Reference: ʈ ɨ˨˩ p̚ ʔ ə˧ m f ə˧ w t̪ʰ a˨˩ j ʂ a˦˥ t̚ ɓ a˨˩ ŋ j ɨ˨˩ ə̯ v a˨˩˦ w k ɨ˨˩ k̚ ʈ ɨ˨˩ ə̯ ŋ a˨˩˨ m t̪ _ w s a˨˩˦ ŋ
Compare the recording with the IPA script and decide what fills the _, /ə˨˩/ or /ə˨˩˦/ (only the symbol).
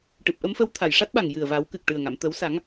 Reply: ə˨˩˦